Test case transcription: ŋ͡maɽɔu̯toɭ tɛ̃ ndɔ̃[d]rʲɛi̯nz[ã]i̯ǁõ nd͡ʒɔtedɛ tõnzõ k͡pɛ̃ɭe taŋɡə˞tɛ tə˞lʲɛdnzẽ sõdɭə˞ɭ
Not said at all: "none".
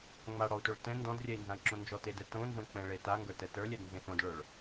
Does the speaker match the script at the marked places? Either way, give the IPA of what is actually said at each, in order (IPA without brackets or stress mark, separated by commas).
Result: d, ã